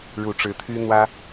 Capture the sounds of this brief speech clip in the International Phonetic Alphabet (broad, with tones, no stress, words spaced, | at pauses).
ɻu˨˩ʈ͡ʂɻ̩˧˥t̪ʰy˥ n̪wä˥